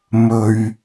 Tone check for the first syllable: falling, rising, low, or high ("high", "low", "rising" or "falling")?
low